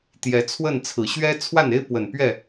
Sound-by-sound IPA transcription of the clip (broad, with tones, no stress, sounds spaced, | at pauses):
t̪ j ɛ˨˦ t͡sʰ w ə˥˨ n t͡sʰ ɹ̩˨˩ ɕ ɥ ɛ˦ t͡sʰ w a˥˨ n e˦ ɪ̯ p w ə˨˩ n p ɥ ɛ˥˨